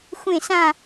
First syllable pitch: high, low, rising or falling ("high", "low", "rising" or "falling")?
falling